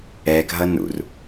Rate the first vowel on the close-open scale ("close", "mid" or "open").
mid